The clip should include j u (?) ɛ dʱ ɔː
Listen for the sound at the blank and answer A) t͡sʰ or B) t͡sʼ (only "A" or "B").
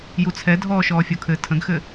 A